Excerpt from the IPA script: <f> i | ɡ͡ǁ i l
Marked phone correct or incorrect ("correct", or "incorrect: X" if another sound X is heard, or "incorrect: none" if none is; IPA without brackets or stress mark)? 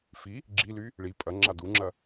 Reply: correct